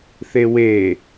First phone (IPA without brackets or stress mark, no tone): θ